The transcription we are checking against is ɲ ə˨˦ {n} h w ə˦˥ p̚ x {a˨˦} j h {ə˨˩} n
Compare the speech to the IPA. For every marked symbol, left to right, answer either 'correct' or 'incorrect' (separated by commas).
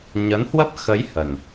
correct, incorrect, correct